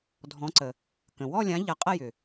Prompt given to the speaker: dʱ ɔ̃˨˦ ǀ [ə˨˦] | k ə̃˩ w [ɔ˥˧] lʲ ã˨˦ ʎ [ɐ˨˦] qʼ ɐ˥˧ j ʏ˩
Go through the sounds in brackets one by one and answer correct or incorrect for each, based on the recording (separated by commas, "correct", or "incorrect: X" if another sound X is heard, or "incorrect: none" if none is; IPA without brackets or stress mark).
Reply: incorrect: ə˩, correct, correct